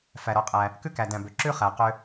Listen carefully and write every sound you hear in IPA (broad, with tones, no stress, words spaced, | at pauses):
fæ˩ɾɔ˩qʼæ˩ | kʉ˥kæ˩dæ̃˩bø˩ ǁʉ˥χæ˩ qø˥